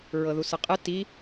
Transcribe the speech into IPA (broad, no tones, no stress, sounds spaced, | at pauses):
ɹ ɤ ð u s ɯ qʼ ɨ t i